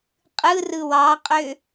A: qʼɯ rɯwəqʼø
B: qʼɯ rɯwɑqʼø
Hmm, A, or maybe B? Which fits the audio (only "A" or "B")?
B